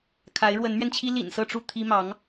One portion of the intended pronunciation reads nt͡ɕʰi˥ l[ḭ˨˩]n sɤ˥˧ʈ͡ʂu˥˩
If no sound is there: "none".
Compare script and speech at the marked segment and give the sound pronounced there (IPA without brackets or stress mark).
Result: ḭ˨˩